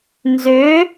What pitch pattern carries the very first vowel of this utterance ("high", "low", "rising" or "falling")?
rising